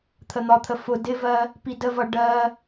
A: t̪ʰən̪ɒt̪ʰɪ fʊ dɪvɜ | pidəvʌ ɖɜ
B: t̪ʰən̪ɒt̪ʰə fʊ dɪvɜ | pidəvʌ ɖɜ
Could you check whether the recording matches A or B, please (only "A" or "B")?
B